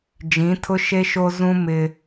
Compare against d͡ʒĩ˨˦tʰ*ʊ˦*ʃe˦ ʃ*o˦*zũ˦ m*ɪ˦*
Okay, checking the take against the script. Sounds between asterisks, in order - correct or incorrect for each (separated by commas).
correct, correct, correct